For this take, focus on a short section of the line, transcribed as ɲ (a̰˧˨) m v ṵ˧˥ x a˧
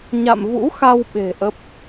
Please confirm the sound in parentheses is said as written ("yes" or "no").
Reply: yes